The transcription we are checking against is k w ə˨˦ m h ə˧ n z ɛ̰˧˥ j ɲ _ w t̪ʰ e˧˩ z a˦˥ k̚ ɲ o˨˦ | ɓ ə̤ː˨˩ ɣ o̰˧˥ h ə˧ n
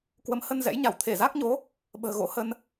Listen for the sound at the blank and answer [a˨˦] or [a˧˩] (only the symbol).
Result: a˧˩